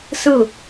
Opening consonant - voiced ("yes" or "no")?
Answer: no